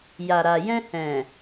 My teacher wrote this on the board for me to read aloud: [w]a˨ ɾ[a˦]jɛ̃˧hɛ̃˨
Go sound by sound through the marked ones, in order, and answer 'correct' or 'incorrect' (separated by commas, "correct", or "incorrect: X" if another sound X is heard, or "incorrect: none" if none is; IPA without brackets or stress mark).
incorrect: j, incorrect: a˨